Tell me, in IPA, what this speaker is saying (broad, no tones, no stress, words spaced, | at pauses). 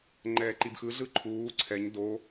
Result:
ŋ͡ǃɛːǃibxɯ ɮɯǃʰuː ǀʰɛɲ do